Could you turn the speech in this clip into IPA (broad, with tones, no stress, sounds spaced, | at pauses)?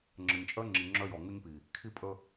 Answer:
ŋ͡ǁ ə˨ ɲ t͡ʃʼ œ˦ ŋ͡ǁ i˨ ŋ͡ǁ œ˦ j ɔ˨ ŋ u˦ ɲ p i˨ | kʰ i˦ pʼ ə˦